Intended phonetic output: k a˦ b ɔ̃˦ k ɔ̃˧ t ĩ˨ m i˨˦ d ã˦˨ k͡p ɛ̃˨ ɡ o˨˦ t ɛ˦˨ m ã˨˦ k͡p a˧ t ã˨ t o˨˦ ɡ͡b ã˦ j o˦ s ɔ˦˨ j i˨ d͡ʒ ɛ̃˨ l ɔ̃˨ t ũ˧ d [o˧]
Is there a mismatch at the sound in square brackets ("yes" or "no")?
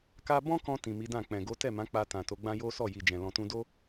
yes